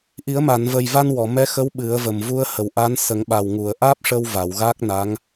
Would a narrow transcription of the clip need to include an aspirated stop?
no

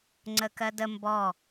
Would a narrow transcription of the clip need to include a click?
yes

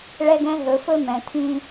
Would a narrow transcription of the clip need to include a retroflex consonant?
yes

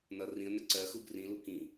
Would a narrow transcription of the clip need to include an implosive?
no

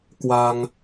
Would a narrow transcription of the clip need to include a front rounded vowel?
no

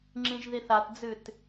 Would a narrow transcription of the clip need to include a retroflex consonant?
no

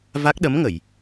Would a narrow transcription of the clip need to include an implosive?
yes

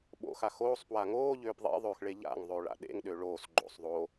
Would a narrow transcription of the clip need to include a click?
yes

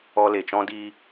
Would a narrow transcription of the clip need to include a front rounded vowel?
no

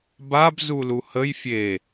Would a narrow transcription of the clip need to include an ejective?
no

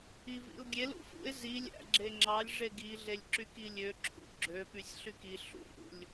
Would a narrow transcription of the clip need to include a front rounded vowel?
yes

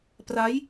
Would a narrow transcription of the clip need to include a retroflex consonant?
no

